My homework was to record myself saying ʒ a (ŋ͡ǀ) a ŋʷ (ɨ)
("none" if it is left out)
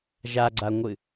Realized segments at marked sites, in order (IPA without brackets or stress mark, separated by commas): ɡ͡ǀ, ɨ